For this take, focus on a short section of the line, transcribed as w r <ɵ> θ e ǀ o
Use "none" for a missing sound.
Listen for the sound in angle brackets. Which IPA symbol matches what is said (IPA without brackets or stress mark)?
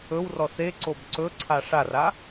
ɔ